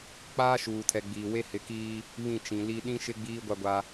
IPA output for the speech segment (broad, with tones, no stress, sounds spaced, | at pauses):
k͡p aː˦ ʃ uː˨ tʰ ɛ˨ ɡ͡b iː˨ w e˦ h ɪ˨˦ k iː˦ | β ĩ˦˨ t͡ʃ ĩ˨ l i˦ ɗ ĩ˦ ʃ ɪ˦ ɡ͡b iː˦ ɡʷ a˦ ɡʷ a˦